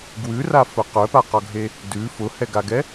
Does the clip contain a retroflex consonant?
no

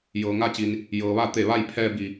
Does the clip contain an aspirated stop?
yes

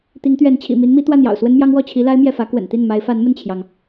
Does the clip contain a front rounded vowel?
no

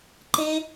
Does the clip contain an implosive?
no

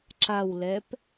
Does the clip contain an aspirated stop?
no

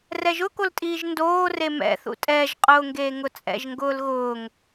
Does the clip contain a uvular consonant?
yes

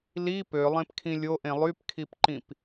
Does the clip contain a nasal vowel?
yes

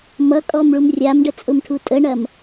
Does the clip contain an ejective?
yes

